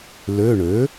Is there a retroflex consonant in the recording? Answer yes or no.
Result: yes